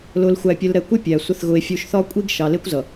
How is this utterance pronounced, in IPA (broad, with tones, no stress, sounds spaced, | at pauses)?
l ʊ˨ l xʷ æ˨ pʲ ə˨ l ɾ ɛ˨˦ kʷ ɪ˦ pʲ æ˨ sʷ ɪ˨ θ ɣ ʊ˨ e̯ fʲ u˨ ʃ θ ɒ˦ kʷʼ i˦ ɡ ʃ ɑ˨ l ɪ˦ kʷ z ʌ˨